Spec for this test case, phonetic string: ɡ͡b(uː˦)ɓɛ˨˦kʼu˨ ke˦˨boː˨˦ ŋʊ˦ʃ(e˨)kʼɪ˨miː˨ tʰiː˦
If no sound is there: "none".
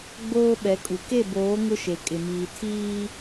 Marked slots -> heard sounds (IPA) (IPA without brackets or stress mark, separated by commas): oː˦, e˨